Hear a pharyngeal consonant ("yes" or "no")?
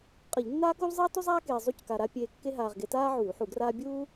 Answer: yes